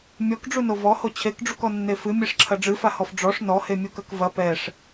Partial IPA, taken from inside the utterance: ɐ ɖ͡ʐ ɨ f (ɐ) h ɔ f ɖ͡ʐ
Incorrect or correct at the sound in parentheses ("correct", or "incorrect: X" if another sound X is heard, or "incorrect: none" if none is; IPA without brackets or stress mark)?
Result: incorrect: a